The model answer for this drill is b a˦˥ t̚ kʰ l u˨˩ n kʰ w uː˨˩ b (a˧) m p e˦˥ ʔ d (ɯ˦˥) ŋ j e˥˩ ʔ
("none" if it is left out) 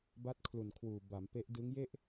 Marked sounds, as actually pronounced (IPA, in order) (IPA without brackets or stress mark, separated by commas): a˩˦, ɯ˦˥